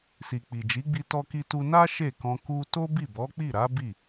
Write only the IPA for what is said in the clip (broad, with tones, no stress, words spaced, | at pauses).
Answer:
si˨k͡pi˨d͡ʒi˨˦ɡ͡bi˧ tɔ˦ki˦tu˦ na˦ ʃe˦˨kɔ̃˧ ku˧to˦ bi˦˨bɔ˨˦k͡pi˦˨ɾa˨˦ bi˦˨